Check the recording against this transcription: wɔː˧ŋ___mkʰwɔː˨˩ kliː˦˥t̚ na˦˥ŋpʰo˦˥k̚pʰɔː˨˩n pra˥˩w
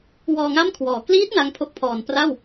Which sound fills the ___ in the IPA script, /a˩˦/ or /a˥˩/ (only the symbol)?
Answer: a˥˩